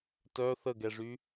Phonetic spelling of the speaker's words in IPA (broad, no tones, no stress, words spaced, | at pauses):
tœ θəɡɛʐy